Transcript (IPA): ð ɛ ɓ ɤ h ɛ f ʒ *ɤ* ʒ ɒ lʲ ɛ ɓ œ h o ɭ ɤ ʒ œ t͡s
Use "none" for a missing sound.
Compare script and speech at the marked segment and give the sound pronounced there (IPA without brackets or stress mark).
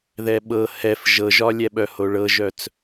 ɤ